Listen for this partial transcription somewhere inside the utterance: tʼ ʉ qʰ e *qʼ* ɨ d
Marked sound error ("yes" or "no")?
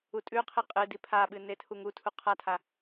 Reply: no